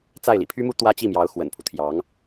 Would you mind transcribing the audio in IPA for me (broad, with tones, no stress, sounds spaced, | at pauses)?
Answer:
t͡s a˥˩ ɪ̯ l ḭ˨˩ pʰ y˥ m u˥ t̪ w ä˥ t͡ɕ i˥˩ m j ɑ˧˥ ʊ̯ x w ə̰˨˩ n pʰ u˦ t̪ʰ j ɑ˧˥ ŋ